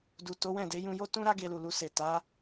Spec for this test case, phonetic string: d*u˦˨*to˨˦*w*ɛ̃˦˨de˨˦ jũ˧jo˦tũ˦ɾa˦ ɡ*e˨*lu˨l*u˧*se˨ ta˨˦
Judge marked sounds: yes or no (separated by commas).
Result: no, yes, no, yes